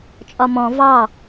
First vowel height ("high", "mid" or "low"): low